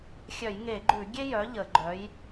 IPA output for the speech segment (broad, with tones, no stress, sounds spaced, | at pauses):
xʲ œ˧˩˧ j ŋ e˧˩˧ ɡ͡ǃ ʉ˧˩˧ ɡʲ e˥ j œ˨˥ ʎ ə˧˩˧ ɡ͡ǃ œ˨˥ j